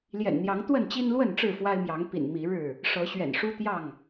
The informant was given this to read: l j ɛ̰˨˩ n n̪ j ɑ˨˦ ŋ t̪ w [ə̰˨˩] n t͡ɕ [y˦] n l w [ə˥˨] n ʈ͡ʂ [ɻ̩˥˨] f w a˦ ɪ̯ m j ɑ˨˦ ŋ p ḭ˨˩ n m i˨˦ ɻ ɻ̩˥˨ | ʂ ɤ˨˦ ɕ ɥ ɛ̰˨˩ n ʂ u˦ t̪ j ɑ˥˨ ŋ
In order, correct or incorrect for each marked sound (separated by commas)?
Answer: incorrect, incorrect, correct, correct